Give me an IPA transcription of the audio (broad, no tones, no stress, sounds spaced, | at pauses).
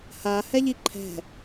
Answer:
h a h ɛ ʎ i ǃʰ ɛ̤